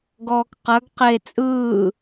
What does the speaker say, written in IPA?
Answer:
ɡɔːkqɐɡ qe t͡sʼɯː

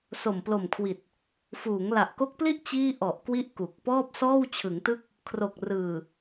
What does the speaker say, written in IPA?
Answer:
so˨˩mplo˨˩mkʰwi˨˩t̚ | fuː˩˦ŋla˨˩ʔko˦˥k̚pli˥˩ʔ t͡ɕiː˥˩ ʔɔ˨˩ʔ kwi˥˩ʔ ku˨˩k̚ pɔː˥˩p̚ sɔː˥˩wt͡ɕʰɯ˩˦ŋtɯ˥˩k̚ | kʰro˨˩k̚ rɯː˨˩

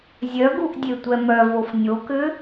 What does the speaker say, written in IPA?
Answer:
zʲœɡuʔ dʲetʷɛmœvof nʲokʏ

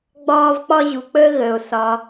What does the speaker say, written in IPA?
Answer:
ɡ͡bɒː˥v k͡pɒ˥ʑu˧k͡pəː˥ɣəː˧o̯ sɒ˧

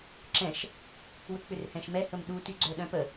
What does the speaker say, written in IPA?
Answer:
ǁɛ̃ʃ | wʏk͡pʏrhɛ̃ʃmɛ həmɗu tyɡ͡ǀœɗœ̃pə

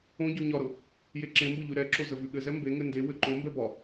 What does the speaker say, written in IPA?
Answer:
õɟʉ ɲɒɾɤ | jeǁẽmbɤ ʎʉɾɛǁo zəvʉɠɘzɛ mbeŋɘ ndewɘ ǃõmbɛ bɒ

